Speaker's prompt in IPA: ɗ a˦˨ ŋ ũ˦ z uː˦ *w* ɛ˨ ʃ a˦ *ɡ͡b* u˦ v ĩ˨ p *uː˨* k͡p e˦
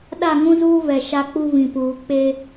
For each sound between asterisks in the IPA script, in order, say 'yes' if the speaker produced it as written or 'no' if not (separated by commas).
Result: no, no, yes